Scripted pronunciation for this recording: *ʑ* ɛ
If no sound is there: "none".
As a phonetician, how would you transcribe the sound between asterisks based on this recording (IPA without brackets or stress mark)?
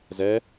z